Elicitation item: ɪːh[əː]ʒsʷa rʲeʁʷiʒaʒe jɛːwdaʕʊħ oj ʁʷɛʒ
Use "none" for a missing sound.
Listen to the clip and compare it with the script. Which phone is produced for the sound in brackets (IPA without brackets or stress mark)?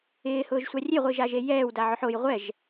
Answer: ʊː